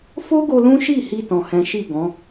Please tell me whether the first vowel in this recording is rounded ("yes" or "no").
yes